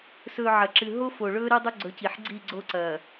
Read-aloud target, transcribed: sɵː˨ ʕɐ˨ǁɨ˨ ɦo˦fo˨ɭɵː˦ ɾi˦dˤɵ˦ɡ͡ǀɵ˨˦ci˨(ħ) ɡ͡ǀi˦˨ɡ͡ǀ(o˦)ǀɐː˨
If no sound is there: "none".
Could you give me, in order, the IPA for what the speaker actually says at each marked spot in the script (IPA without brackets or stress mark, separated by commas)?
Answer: ħ, o˦